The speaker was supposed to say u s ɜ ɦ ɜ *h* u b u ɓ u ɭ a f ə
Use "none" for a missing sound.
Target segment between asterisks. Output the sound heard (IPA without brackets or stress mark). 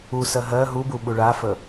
ɦ